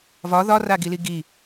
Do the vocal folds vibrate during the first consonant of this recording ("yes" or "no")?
yes